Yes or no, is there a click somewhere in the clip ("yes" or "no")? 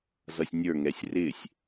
no